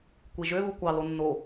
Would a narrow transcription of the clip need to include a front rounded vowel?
yes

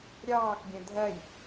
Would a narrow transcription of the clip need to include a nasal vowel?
yes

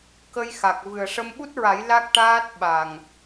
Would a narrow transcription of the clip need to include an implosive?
yes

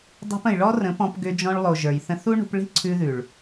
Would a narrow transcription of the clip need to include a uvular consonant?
no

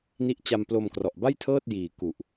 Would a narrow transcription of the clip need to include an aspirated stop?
yes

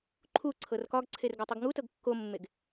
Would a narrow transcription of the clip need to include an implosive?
no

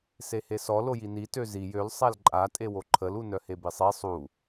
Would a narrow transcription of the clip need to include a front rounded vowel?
yes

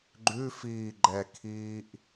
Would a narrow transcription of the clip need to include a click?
yes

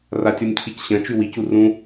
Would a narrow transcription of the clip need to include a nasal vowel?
yes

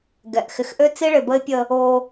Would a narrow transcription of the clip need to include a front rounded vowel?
yes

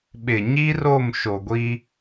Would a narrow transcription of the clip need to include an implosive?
yes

